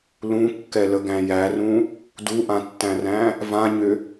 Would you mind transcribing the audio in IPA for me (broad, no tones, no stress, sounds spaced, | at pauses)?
l ũ kː ɛ l ə ɡ æ̃ j æ r ũ | d u ʔ ã tː æ̃ r æ̃ | v ã ɲ ʏ